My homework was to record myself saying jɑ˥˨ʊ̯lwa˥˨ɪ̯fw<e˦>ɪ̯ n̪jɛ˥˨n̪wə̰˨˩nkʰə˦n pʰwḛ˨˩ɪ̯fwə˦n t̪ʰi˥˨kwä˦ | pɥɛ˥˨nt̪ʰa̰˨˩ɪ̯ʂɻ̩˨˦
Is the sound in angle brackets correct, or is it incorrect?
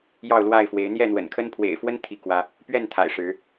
incorrect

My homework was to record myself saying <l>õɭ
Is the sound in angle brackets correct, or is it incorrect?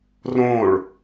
incorrect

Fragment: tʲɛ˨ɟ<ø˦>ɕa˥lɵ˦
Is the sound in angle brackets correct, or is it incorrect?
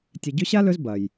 incorrect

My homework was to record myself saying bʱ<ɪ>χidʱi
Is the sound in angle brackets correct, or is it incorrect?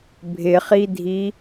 correct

